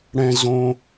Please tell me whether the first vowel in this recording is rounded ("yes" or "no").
no